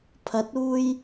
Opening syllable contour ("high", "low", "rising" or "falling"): rising